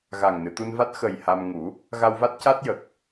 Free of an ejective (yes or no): yes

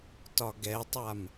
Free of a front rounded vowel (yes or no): yes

